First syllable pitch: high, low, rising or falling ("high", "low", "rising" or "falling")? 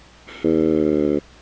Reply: low